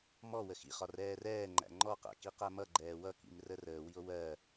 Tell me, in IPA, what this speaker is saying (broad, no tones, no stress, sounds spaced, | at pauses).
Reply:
m ɔ w ə x ḭ χ ɒ r ɛː r ɛː ŋ͡ǃ æ̰ ŋ͡ǃ ɔ q æ̰ k i q æ m ʌ ɡ͡ǃ ɛː w ʌ k ḭ m r ə r əː w i o̯ w ɜ